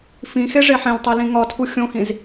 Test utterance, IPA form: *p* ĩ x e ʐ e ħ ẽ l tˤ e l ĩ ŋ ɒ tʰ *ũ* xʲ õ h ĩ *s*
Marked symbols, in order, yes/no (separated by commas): no, no, no